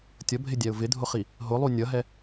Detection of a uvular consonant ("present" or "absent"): present